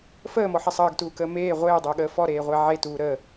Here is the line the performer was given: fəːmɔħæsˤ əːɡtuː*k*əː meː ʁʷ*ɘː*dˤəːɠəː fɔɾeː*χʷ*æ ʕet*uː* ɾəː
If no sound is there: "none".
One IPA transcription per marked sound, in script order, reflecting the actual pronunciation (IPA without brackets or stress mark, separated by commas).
k, eː, ʁʷ, uː